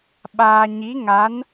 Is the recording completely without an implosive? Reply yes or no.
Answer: no